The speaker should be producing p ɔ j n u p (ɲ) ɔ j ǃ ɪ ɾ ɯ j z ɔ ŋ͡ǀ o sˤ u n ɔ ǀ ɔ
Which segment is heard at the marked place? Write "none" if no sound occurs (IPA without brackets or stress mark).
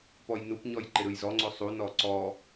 ɲ